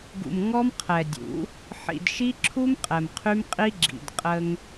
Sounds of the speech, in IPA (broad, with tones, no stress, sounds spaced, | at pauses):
ɡ ṵ˨ m ŋ ɔ˦ m qʰ ɛ˨ dʲ ṵ˨˦ | ħ ḭ˨ d ʃ i˦ ǁʰ u˦ m qʼ ɛ˨ m qʰ y˦ m qʼ i˦ ɡ͡ǁ ḭ˨ d qʼ ə˦ ŋ